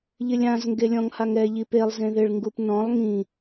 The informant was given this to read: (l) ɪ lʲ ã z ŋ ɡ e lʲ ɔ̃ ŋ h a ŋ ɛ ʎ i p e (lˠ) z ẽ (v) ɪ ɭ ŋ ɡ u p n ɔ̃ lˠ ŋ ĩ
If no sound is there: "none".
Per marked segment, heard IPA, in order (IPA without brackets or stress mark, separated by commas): ʎ, lˠ, ð